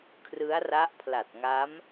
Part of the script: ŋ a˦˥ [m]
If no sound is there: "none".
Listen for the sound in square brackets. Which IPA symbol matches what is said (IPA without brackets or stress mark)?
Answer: m